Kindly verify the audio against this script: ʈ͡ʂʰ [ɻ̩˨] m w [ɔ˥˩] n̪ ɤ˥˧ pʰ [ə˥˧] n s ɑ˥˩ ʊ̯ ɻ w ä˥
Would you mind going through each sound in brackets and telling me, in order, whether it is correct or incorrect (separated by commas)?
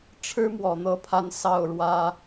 incorrect, incorrect, incorrect